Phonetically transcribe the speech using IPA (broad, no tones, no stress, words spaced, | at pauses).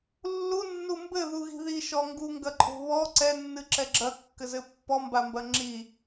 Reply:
lːunːu mbɘðuɣi̤ ðiʃɔ ŋɡuŋɡɐǃʼo̤ βɔ ǀɛnːɨǁɛ ɡ͡ǁɐkːɘzɘ pːɔmbambɐ ŋ͡ǁi